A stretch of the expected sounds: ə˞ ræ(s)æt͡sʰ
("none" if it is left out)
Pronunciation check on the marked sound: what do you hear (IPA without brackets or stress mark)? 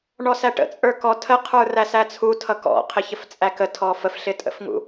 s